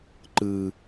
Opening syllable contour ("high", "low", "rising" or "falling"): high